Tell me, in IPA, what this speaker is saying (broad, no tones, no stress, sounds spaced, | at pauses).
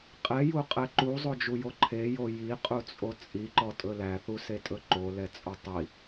qʼ ɛ j u qʼ ɛ ǃ u zˤ o d͡ʒ u j o ǃʰ e j o j i qʼ u t͡sʼ o t͡sʼ i ǃ ɔ tʼ ɵ l æ θ u s e tʼ ɵ ǃ o l ɛ t͡sʼ o tˤ i